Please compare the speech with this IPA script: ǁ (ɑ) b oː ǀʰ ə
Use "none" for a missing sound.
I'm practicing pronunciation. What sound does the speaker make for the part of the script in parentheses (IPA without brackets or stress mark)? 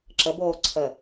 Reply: ə